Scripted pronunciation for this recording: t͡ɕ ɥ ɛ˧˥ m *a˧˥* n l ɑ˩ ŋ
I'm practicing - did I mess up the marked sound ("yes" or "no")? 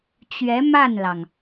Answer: yes